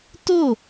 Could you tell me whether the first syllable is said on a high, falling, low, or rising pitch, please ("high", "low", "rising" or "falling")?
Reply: falling